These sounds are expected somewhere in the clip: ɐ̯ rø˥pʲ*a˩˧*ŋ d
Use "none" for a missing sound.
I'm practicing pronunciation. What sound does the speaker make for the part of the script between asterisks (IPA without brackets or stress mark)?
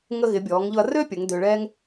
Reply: ə˩˧